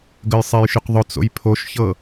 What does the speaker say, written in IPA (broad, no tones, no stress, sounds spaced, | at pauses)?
ɡ ə j sˤ e j ʃ ʊ q ðˤ ʊ t͡s o̰ j pʰ o ʃ ç ɤ